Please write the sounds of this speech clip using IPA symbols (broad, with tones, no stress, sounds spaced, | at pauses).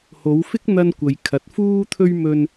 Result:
h o˨˧ w f ɪ˥ k̚ n̪ ɐ˧ n kʷ ɐ˨ j kʰ ɐ˨˥ t̚ f uː˥ t̪ʰ ɵ˥ ɥ m ɵ˧ n